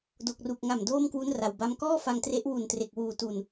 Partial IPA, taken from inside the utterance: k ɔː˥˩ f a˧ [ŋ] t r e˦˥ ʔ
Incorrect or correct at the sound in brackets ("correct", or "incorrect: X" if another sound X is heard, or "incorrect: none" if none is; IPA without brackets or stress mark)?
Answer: correct